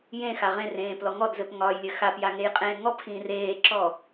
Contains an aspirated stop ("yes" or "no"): no